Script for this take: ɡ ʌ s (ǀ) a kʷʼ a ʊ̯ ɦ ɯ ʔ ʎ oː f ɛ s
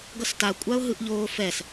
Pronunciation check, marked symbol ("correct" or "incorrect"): incorrect